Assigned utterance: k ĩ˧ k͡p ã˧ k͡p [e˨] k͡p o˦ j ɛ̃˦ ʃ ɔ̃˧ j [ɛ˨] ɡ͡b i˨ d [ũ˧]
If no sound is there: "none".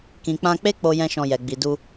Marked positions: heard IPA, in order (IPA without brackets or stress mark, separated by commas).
e˦, ɛ˨, u˧